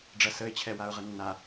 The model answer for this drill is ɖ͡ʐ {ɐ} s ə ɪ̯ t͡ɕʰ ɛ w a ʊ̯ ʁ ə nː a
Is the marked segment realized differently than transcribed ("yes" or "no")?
no